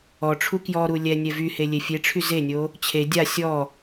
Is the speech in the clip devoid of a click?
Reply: yes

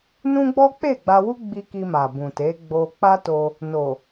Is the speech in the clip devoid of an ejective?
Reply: yes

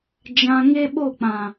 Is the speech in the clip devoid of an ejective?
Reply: yes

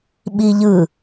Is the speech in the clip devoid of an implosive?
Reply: no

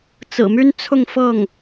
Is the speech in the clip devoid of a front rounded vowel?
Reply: no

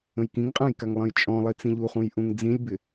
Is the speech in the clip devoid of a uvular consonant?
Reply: no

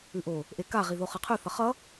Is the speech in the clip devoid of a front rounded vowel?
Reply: yes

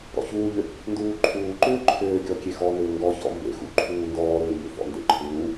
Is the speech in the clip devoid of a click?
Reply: no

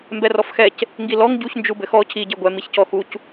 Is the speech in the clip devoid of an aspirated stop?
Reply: no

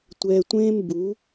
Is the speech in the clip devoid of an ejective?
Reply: yes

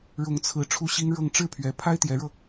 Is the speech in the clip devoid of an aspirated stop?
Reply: no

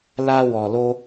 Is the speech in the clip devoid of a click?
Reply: yes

